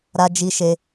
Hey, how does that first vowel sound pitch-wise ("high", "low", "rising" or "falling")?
high